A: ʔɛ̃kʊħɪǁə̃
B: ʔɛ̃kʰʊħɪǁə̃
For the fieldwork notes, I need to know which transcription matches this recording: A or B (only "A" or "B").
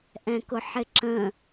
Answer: A